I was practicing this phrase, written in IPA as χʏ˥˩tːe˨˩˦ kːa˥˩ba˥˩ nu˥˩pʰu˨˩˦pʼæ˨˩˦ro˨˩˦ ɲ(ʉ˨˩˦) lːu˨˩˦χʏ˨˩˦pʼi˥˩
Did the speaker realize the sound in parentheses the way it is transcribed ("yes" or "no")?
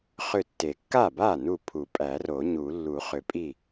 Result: no